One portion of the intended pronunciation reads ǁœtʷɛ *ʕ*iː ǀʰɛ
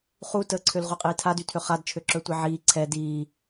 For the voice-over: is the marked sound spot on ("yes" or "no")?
yes